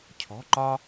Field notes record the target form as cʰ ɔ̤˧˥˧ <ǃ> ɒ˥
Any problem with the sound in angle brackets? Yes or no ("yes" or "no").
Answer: no